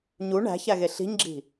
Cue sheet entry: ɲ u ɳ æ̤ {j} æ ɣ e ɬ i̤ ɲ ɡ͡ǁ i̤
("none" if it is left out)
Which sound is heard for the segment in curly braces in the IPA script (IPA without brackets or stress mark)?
ç